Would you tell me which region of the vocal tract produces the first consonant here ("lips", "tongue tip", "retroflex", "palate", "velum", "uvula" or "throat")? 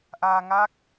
throat